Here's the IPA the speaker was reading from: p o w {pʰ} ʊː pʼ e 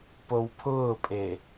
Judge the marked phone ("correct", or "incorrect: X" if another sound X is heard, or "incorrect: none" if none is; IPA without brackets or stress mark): correct